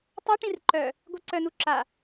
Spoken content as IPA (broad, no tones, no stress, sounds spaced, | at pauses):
tˤ a ʈ ĩ r ǃ œ | ɡʷ e ǀ œ n u ǁ a